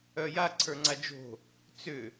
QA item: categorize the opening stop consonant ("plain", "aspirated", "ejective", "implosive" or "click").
click